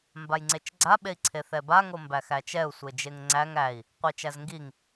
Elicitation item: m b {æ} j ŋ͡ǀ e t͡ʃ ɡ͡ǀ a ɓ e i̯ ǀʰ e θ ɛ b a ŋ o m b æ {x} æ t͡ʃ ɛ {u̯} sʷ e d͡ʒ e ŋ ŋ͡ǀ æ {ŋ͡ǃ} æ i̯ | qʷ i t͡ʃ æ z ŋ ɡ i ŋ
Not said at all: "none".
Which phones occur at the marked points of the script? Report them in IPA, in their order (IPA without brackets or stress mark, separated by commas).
a, x, u̯, ŋ